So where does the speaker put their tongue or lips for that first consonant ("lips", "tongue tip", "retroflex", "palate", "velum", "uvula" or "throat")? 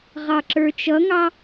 uvula